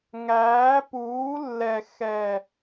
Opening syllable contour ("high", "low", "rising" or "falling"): rising